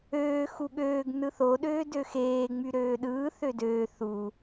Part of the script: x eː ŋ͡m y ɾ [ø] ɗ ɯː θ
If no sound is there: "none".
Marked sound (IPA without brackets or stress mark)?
øː